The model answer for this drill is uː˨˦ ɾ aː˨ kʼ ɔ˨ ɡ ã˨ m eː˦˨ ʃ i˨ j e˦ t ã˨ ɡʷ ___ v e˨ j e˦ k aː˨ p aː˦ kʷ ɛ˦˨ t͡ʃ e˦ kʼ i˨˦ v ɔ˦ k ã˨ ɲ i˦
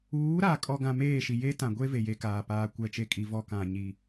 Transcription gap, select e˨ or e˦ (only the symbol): e˦